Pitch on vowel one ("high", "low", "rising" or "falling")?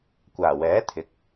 low